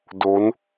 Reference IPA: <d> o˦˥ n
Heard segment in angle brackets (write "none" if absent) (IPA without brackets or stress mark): d